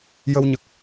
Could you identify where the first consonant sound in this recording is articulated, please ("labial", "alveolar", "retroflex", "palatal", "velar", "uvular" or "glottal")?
palatal